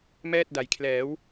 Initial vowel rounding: unrounded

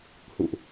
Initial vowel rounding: rounded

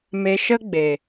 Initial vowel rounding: unrounded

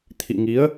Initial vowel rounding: unrounded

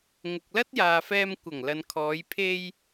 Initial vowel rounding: rounded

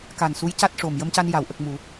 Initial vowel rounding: unrounded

